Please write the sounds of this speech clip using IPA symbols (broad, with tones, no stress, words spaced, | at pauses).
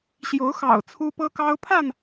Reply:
ɕjo˨˦ʊ̯xɑ̰˨˩ʊ̯ t͡sʰu˦pɤ˦kɑ˦ʊ̯pʰa˥˨n